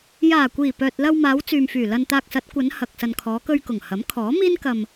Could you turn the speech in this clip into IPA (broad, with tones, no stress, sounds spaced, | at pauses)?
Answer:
j aː˨˩ kʷ iː˨˩ p œː˨ t̚ l ɐ˧ w m aː˨˧ w t͡s yː˨ m f yː˨˩ l ɐ˧ n t̪ aː˧ k̚ s ɐ˨˥ t̚ kʷ ɐ˨˧ n h ɐ˨ k̚ s ɐ˨ n kʰ ɔː˨˧ k ɵ˧ ɥ k ʊ˨˩ ŋ h ɐ˨˥ m kʰ ɔː˨˥ m iː˥ n k ɐ˧ m